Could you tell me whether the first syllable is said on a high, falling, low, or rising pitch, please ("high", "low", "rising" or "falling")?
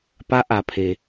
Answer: rising